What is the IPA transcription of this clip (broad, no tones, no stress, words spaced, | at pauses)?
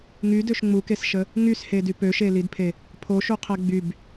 ŋydøʃ ŋ͡mukesʃə | ŋyshedy pøʃelidpʰe | pʰoʃuqʰɛ ɡ͡byb